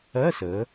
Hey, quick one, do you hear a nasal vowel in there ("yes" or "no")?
no